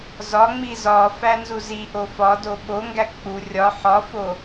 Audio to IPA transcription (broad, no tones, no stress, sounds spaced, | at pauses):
z ɒ ŋ͡m i z ɒ f æ n z u z i ʔ o f ɒ d o ɓ o ŋ ɡ æ k͡p u rʲ ɒ ħ ɒ f o